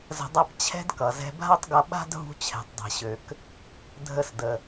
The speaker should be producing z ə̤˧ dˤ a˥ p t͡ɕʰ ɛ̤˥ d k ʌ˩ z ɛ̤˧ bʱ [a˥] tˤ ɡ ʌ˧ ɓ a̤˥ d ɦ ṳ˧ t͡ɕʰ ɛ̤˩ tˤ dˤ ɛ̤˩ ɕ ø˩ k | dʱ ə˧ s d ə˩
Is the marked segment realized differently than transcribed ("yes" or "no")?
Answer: no